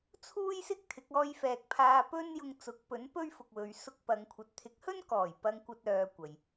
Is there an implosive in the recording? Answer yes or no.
no